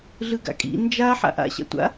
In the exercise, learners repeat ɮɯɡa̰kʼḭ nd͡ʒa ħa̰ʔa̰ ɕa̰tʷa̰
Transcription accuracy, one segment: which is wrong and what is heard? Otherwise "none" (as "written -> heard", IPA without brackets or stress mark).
none